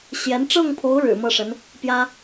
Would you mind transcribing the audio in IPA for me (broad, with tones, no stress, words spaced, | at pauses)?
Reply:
ɕjɛ˧˥n ʈ͡ʂɤ˥˩ŋpʰo˧˥ʊ̯ ɻɻ̩˨˩mɤ˥˩ʂə˧˥n | pjä˥